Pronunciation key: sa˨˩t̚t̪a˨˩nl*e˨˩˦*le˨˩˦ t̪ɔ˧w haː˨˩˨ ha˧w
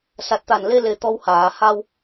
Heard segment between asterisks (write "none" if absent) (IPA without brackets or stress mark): e˧